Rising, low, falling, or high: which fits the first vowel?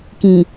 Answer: low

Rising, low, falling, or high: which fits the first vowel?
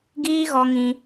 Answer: high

